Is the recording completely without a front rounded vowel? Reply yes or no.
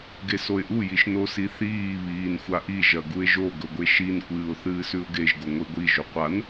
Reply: yes